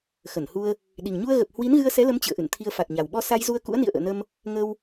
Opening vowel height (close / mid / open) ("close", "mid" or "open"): mid